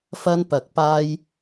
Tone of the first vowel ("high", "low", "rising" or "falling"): low